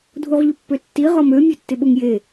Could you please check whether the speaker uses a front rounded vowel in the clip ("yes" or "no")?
yes